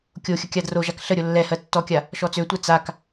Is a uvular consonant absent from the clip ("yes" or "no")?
yes